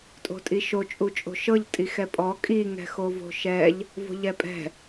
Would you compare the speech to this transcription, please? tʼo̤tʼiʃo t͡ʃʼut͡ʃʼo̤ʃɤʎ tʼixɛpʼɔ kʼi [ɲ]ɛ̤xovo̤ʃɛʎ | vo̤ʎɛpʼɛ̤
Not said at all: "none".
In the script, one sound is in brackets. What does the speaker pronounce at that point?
ŋ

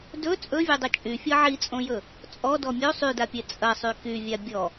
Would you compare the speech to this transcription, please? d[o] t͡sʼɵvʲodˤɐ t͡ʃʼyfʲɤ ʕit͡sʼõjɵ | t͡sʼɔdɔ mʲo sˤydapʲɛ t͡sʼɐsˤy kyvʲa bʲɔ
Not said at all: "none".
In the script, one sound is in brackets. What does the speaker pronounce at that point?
ɵ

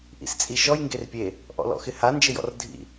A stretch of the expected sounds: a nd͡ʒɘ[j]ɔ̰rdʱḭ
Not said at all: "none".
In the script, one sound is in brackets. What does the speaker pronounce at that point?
j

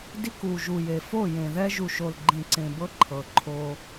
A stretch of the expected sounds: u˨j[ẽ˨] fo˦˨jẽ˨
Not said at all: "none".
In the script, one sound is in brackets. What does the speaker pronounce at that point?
e˨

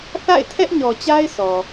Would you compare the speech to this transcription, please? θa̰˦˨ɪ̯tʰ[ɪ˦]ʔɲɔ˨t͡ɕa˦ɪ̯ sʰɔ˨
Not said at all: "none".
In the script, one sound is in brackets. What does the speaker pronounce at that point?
ɛ˦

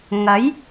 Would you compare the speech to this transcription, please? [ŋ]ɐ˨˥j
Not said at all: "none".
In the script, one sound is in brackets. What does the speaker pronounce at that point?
ŋ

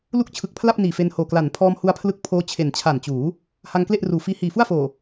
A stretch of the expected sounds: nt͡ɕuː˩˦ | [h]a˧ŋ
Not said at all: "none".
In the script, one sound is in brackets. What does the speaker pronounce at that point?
h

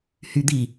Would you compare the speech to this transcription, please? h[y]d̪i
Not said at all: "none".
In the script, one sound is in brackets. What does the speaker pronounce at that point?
y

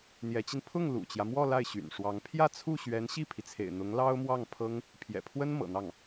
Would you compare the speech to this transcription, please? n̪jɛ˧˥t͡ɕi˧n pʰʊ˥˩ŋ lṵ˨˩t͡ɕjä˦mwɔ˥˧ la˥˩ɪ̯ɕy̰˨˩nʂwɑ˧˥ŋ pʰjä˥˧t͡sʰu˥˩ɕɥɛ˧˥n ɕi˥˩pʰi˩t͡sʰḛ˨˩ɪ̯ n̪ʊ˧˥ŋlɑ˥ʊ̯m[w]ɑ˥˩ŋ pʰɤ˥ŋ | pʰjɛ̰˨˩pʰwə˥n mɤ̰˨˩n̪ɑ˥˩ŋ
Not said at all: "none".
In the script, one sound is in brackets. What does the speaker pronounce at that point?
w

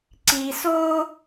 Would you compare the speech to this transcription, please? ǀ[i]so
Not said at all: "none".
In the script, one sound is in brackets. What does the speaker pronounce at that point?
i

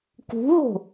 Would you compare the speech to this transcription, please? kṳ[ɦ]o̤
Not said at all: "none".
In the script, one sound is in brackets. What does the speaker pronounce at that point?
ɦ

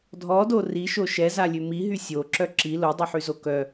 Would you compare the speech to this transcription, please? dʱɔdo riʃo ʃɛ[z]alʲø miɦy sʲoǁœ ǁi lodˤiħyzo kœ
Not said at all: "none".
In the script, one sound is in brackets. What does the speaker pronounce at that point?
z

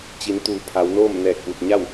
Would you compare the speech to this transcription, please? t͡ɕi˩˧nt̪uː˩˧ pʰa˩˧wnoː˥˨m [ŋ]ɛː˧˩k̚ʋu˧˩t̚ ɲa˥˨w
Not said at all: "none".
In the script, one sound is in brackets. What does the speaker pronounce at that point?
n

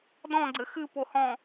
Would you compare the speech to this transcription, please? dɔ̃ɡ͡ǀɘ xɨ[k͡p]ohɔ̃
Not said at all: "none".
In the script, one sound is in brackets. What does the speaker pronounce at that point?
p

